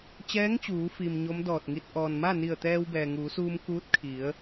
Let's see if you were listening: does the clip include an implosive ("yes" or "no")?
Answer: no